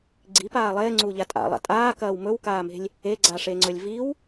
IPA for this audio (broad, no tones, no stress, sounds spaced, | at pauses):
ɡ͡ǀ i p aː lˠ eː ŋ͡ǀ uː ʎ a tʼ a̰ lˠ a̰ tʼ aː k ɐː w m ɵ w k aː m e̤ lʲ | e ɡ͡ǀ a ʂ e ŋ͡ǀ ɵ lʲ v i w